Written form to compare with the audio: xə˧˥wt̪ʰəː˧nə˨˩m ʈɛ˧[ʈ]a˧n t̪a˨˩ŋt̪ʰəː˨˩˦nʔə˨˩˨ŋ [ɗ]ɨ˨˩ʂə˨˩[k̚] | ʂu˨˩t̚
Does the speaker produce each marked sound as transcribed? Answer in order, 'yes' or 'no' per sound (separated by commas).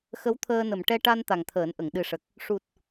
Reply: yes, yes, yes